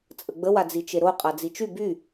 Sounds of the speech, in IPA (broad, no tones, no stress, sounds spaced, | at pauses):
t͡sʼ ə ɡ͡b ə w a d͡z i t͡ʃ e ɾ o qʼ a d͡z i t͡ʃ y b y